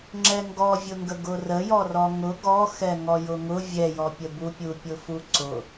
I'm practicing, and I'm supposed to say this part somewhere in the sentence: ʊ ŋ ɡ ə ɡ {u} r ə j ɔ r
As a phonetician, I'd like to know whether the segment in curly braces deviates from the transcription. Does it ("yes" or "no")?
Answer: yes